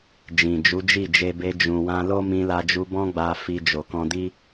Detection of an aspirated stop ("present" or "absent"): absent